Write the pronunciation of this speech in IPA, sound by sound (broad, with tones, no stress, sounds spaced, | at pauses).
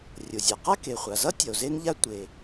rʲ o˩ zʲ a˩ q a˥ k e˩ χʷ a˩ z ʌ˥ tʲ ʌ˩ o̯ z e˥ n ʎ a˥ tʷ e˩